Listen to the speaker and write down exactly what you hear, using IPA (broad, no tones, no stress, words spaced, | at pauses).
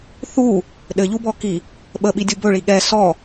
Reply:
θu | ɗɘʎubɔki | ɓəɓidʲu bɵɭi ɠɛ sɔ